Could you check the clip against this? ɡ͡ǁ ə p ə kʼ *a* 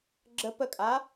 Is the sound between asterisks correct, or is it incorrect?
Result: correct